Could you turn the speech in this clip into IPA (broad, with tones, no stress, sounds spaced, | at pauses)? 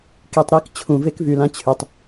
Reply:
k i˧ tˤ ɾ i˦˨ k t͡ɕʰ ũ˨ v e˦ k v y˨ l ã˧ t͡ɕʰ y˨ tˤ